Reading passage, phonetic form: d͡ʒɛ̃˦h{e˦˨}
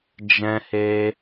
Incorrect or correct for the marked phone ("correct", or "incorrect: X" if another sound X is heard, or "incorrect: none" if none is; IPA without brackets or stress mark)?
incorrect: e˦